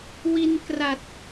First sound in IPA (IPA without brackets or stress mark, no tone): w